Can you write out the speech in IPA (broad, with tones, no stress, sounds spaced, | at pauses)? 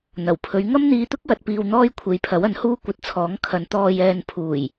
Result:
n̪ ɐ˨˩ w pʰ ɵ˨˧ ɥ ŋ ɐ˥ m n̪ iː˧ t̪ ʊ˥ k̚ w ɐ˧ t̚ p iː˧ w n̪ ɔː˥ j kʷʰ e˨˧ j pʰ ɐ˨˥ w ɐ˨˧ n h uː˥ kʷ ɐ˧ t̚ t͡sʰ ɔː˨˥ ŋ kʰ ɐ˨ n t̪ ɔː˨ j ɛː˨ n pʰ uː˨˩ j